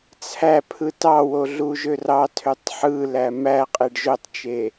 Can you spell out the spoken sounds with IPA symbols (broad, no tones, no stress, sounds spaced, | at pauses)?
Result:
t͡sʰ æ pʰ ɯ t ɑ w o ɮ u ʒ ø r ɑ tʰ ø tˤ ħ ɯ l æ m æ qʼ e ɖ ʒ o tˤ t͡ʃ e